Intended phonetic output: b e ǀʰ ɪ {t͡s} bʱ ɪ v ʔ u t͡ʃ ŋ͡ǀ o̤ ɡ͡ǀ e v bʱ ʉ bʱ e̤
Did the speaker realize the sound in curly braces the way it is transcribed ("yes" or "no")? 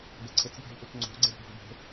yes